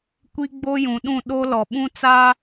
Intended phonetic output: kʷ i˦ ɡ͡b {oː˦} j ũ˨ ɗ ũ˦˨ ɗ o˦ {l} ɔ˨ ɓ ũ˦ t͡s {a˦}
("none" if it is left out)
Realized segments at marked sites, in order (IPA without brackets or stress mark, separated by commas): o˦, l, a˦